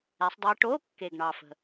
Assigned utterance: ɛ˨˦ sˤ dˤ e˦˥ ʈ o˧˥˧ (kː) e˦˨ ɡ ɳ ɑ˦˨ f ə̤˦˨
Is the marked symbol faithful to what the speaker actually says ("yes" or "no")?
yes